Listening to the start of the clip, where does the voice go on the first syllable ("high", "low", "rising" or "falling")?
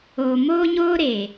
low